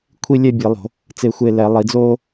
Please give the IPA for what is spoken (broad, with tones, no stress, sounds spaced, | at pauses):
kʷʰ i˦˨ lʲ ɛ˦˨ bʲ e˧˩˧ lˠ o̤˧˩˧ | t͡s e˦˨ xʷ e˦˨ l ɛ˧˩˧ lˠ i˧˩˧ d͡z oː˥